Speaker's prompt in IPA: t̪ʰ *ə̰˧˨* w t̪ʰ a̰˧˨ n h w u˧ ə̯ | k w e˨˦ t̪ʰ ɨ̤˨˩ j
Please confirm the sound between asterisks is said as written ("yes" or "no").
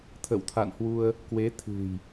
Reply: yes